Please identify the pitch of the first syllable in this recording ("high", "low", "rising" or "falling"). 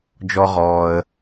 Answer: high